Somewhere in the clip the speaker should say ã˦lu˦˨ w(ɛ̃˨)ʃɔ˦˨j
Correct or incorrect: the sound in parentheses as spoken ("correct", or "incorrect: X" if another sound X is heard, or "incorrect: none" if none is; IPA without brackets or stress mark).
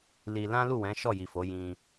incorrect: ɛ̃˨˦